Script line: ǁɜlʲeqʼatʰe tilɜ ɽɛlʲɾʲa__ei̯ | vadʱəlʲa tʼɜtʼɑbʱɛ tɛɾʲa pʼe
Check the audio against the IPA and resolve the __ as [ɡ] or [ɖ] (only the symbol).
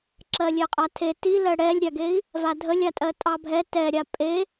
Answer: ɡ